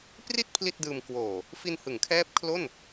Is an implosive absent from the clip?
yes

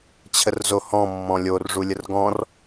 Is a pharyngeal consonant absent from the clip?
yes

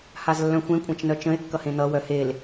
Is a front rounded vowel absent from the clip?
no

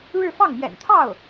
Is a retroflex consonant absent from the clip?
no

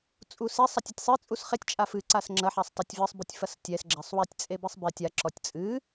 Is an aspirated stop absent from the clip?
yes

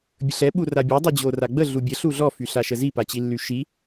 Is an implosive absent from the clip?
no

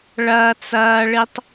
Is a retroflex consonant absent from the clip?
no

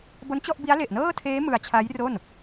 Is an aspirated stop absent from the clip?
no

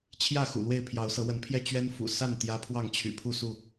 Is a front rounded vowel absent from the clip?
no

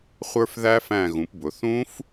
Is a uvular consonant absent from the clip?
no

